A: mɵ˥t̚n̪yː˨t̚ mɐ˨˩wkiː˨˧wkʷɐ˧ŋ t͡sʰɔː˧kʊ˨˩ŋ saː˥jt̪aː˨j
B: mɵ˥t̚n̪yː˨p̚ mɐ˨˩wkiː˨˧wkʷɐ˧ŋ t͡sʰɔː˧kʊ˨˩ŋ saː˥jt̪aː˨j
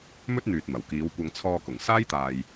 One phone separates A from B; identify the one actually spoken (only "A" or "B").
A